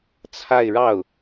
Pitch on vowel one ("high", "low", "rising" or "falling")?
falling